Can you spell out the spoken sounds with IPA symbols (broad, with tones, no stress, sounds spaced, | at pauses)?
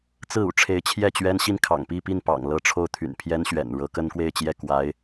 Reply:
t͡s ɹ̩˥˩ ṵ˨˩ ʈ͡ʂʰ e˧˥ ɪ̯ t͡ɕʰ j ɛ˥˩ t͡ɕ ɥ ɛ˥ n ɕ i˥˩ n kʰ ɑ̰˨˩ ŋ p i˥˧ p i˥˩ n p ɑ̰˨˩ ŋ l ɤ˥˧ ʈ͡ʂʰ o˥˩ ʊ̯ t̪ʰ y̰˨˩ n pʰ j ɛ˥ n ɕ ɥ ɛ̰˨˩ n ɻ ɤ˧˥ k ə˥ n k w e˥˧ ɪ̯ t͡ɕ j ɛ˥˩ k w a˧˥ ɪ̯